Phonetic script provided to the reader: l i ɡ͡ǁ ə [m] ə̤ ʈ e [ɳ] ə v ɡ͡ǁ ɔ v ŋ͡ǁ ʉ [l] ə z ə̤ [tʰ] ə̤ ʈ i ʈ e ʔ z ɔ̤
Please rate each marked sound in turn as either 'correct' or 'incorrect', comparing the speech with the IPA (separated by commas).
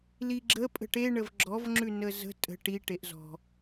incorrect, correct, incorrect, incorrect